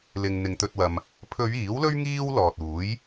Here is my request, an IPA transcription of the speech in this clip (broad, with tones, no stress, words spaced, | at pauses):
lɪ˨ŋ n̪ɪ˨˧ŋt̪ɵ˧t̚wɐ˧m | pʰɵ˨˧ɥ iː˨˥wlɵ˥ɥ ŋiː˥w lɔː˨t̚uː˨˥j